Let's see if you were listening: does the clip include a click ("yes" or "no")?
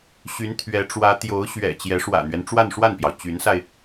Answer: no